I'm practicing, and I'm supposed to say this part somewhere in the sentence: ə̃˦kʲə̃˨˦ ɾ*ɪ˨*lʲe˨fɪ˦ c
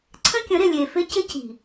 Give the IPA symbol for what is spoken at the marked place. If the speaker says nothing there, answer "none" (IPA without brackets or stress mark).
ɪ˨